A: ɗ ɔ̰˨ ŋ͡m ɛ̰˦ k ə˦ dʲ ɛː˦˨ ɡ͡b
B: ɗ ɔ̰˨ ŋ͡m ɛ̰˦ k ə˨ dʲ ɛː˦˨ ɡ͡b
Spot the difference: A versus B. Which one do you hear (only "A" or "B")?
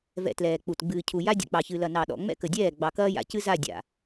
B